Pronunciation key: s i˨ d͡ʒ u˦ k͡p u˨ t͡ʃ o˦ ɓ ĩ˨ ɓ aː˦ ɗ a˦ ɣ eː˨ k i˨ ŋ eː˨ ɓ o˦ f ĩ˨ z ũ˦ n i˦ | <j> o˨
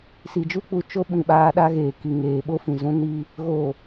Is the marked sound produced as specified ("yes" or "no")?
no